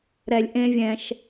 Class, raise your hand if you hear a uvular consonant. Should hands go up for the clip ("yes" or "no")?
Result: no